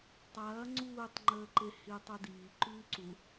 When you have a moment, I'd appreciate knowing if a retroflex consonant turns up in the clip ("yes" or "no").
no